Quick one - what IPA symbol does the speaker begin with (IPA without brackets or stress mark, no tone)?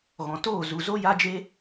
ɣ